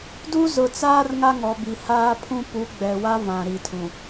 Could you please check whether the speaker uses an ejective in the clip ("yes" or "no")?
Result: no